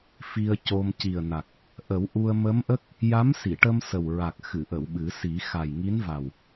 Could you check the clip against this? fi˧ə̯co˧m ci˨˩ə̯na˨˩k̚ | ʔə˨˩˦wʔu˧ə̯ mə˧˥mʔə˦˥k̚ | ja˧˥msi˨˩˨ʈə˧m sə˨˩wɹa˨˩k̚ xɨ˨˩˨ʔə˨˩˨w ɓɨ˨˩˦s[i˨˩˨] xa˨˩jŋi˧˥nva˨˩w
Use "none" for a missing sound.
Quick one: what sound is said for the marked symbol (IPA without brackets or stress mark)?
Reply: i˨˩˦